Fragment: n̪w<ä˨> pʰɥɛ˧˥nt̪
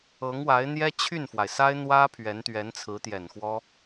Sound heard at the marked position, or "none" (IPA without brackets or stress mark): ä˥